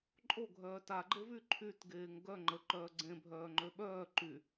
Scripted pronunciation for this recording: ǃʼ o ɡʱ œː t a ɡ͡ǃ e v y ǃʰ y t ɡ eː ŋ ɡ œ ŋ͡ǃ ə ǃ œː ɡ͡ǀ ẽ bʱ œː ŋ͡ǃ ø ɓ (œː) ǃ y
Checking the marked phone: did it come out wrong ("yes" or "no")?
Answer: no